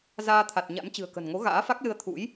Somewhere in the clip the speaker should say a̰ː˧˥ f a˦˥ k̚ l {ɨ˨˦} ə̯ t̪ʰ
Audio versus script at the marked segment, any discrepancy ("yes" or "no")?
yes